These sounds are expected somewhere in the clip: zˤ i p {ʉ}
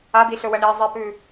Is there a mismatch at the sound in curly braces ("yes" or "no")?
no